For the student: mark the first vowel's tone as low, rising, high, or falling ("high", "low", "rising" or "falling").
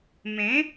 rising